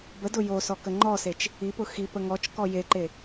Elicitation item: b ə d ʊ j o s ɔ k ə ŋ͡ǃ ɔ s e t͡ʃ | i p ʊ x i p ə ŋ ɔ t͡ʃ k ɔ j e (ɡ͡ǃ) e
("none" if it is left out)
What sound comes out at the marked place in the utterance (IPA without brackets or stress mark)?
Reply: ǃ